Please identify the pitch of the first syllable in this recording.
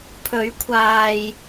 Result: rising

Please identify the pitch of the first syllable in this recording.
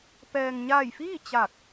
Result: low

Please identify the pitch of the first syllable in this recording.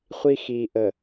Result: high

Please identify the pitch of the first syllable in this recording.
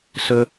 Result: high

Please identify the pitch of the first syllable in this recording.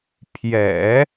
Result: low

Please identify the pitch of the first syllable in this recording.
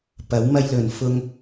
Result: rising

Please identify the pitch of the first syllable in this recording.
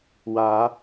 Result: rising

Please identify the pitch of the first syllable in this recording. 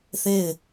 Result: falling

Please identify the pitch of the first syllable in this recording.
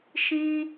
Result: high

